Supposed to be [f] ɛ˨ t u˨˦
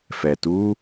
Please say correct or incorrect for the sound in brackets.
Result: correct